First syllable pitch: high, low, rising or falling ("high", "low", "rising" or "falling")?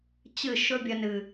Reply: falling